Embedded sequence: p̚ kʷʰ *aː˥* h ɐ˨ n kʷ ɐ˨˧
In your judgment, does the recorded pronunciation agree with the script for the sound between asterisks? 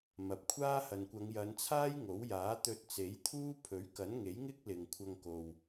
yes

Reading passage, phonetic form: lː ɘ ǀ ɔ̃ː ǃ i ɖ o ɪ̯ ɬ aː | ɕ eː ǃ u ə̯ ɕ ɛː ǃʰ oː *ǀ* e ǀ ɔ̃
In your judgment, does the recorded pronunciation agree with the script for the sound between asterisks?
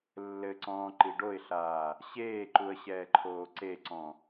yes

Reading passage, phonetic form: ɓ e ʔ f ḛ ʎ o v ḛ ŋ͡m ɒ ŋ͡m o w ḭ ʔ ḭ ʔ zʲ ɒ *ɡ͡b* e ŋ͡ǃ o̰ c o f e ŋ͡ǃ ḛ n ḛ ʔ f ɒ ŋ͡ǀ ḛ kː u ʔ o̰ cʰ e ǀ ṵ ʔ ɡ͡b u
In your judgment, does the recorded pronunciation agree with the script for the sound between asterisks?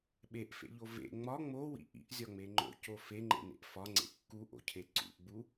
no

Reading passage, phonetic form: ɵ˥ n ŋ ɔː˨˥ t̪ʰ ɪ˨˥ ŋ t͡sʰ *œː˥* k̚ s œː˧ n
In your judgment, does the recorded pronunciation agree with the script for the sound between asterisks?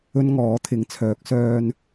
no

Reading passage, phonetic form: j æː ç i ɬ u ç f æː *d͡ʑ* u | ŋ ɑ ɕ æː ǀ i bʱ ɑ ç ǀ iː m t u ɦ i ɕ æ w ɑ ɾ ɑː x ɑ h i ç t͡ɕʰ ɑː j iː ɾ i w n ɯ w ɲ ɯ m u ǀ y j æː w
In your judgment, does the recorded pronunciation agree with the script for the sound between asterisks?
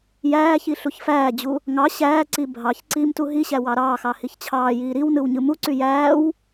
yes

